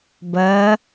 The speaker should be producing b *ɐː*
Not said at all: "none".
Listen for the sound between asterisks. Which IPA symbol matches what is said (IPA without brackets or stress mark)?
ɐː